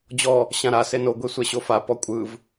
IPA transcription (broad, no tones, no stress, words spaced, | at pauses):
d͡ʑɔ | ɕãɾa seno ɡʷesʷɛɕofa pɔkʷʼɯv